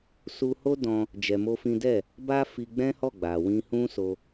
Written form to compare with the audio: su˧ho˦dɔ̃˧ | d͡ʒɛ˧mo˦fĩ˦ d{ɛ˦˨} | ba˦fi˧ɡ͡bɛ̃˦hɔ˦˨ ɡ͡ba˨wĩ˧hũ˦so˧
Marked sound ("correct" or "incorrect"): correct